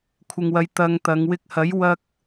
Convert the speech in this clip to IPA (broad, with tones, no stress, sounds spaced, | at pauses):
kʷʰ ɪ˨ ŋ w ɐ˨˧ j t̪ ɐ˧ ŋ t̪ ɐ˨˧ ŋ w ɪ˧ k̚ h ɐ˨˥ j w ɐ˧ k̚